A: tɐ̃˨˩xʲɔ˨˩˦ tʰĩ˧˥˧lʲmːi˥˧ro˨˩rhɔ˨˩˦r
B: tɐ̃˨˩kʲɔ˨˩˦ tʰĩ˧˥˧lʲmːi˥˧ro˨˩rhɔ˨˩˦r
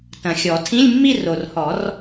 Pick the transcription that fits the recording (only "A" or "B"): A